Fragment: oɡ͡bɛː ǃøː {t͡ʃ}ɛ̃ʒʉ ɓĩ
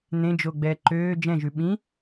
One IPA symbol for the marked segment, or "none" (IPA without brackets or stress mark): d͡ʒ